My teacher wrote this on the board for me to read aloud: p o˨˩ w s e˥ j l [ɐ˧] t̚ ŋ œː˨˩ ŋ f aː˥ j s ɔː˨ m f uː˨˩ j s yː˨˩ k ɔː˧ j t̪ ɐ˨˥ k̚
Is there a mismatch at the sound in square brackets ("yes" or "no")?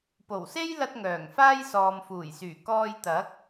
no